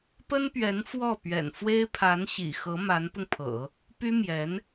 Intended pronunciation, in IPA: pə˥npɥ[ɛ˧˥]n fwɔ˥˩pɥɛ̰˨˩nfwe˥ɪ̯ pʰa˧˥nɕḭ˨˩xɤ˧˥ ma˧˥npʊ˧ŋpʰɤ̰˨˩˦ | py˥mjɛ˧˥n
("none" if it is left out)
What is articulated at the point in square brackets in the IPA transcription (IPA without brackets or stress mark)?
ɛ˧˥